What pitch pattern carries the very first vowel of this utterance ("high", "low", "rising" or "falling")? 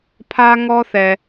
high